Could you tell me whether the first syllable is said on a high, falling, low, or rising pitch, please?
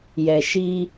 low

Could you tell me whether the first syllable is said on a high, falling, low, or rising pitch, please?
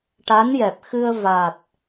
rising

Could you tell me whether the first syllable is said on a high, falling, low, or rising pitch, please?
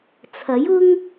rising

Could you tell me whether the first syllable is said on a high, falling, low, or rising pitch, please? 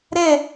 falling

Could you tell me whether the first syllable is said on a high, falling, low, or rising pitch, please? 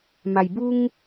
low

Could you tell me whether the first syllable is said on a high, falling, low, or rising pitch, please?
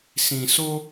low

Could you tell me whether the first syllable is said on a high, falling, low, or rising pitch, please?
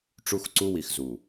high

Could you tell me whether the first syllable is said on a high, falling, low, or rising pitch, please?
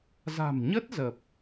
low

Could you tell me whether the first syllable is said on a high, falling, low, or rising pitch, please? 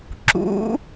rising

